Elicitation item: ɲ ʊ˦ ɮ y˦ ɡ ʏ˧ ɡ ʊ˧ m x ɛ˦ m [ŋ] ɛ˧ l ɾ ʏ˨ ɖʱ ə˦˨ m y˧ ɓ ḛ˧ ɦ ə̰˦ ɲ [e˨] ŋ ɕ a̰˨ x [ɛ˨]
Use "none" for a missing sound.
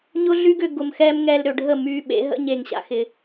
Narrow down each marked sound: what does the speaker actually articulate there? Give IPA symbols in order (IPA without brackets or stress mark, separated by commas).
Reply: ŋ, e˨, ɪ˨